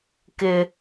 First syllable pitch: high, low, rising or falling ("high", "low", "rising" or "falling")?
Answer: low